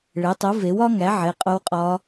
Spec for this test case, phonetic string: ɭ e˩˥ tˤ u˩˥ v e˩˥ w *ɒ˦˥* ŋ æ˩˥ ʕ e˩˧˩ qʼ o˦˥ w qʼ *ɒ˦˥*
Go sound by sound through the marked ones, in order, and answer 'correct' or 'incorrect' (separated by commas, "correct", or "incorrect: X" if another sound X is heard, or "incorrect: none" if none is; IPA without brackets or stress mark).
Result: correct, correct